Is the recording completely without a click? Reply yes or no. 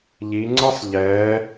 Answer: no